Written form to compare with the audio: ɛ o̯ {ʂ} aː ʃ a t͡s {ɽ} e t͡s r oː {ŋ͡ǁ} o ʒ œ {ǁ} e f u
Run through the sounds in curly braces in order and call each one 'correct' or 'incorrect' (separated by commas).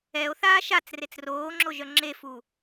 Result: incorrect, incorrect, correct, incorrect